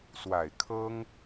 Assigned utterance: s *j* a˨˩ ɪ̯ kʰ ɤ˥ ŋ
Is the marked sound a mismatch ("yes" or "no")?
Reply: yes